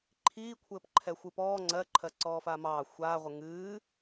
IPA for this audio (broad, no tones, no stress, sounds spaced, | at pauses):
ǃʰ iː kʷʰ ɘː p ǃʰ ɛ xʷ ɨ p ɔː ŋ͡ǀ ɜ ǃʰ ɜ ǀ ɔː f a m ɑː xʷ aː ʁʷ ɘ ŋ ɨː